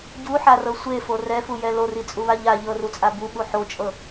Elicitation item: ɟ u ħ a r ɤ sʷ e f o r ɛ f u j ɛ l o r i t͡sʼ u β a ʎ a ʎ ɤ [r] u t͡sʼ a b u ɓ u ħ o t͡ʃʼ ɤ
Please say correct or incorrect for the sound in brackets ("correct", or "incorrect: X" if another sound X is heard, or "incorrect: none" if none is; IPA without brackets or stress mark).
correct